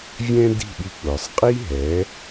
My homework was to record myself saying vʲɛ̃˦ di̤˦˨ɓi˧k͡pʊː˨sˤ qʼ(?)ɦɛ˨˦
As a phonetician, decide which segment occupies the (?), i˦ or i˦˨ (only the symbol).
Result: i˦